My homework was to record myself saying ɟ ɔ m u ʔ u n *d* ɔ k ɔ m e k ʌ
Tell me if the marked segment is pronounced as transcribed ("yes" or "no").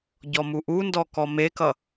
yes